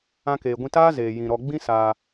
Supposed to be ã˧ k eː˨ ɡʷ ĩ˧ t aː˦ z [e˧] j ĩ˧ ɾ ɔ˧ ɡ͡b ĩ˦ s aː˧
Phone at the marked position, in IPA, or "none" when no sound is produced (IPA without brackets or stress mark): eː˧